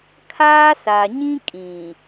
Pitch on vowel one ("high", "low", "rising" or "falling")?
high